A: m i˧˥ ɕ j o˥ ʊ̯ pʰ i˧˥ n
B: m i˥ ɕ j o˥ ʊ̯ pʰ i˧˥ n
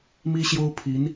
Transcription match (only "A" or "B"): B